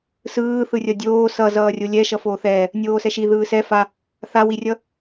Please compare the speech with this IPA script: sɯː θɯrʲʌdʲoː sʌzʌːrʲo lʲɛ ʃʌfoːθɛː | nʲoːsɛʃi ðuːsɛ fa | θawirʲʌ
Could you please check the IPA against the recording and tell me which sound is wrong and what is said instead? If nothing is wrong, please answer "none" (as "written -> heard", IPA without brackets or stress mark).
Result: uː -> ɯː